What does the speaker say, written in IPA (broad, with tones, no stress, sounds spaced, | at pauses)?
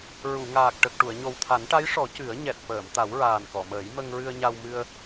ɹ u˨˩˨ ŋ aː˨˩ k̚ ʈ ə˨˩ k̚ ʈ u˨˩˨ ə̯ ɲ o˨˩ w t̪ʰ a˨˩˦ n ʈ a˧˥ j ʂ ɔ˨˩˦ c ɨ˨˩˦ ə̯ ɲ ɛ˨˩ t̚ f əː˨˩˨ m t̪ a˨˩˦ w ɹ aː˨˩ n k ɔ˨˩˨ m əː˨˩˦ j m ə˧ ŋ ɹ ɨ˧ ə̯ ɲ a˧ w m ɨ˧ ə̯